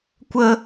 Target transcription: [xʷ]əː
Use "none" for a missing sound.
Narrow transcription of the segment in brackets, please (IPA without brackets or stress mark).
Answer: kʷ